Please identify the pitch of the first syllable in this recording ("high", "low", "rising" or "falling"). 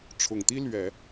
low